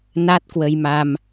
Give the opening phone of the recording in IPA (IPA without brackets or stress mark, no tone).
n